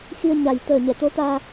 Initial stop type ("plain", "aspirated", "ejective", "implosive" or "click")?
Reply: plain